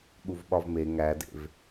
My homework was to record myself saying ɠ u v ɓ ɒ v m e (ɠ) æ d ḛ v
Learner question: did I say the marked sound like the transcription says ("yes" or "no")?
no